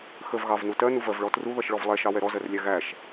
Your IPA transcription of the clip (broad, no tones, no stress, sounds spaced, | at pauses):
x ə v ɣ ɑ v n u t ɜ n u v ɜ v ɭ ɔ t r u ð ʌ ʃ ɭ ɔ v lˠ ɛ ʃ ɑ w ɛ ɾ ɔ z ɜ r lʲ æ ɣ æ ʃ